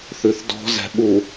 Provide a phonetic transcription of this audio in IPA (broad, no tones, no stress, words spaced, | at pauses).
θʉθdɔ̤ zɛ̤ɓu